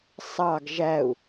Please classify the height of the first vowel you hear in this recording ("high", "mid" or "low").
low